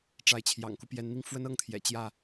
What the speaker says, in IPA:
ʈ͡ʂa˨˦ɪ̯t͡ɕʰjɑ̰˨˩ŋku˦ pjɛ˨˦nn̪i˧ŋ fwə˦nɤ˥˨ŋt̪ʰjɛ̰˨˩ t͡ɕjä˥˨

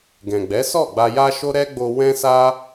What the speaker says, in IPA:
ɡɛ̃˨ɡ͡bɛ˨˦sɔ˦˨ ɡ͡ba˧ja˦ʃo˦ ɾɛ˦ɡ͡bo˧ wɛ̃˦sa˦

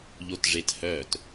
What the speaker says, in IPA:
ʎotʐethœːt

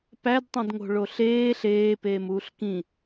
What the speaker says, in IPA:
pædtˤẽdŋo̤ɭo ɬeː ɬeːpeːmuːɬ kĩ

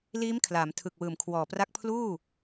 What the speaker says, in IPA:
liː˦˥mkʰlaː˩˦m tʰɯ˨˩k̚wɯː˨˩mkʰwɔː˨˩pra˦˥k̚ pʰluː˥˩

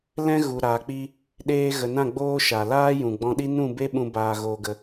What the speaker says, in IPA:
lɛ̃˦ ɣu˨ɾaː˨k͡pi˧ | ɗeː˧ ɣə˨nã˦˨ ɡ͡boː˦ʃa˨ laː˦jũ˨ɡ͡bɔ̃˧ɗi˦ nũ˦˨be˦ɓũ˧ baː˧ɣoː˧ɡə˧

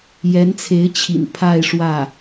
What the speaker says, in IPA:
jɛ˧˥nt͡sʰe˧˥ɪ̯ t͡ɕʰḭ˨˩n pʰa˥˧ɪ̯ʂwä˥˩

